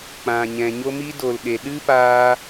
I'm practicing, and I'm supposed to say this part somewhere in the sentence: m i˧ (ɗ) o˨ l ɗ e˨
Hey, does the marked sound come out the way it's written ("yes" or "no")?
no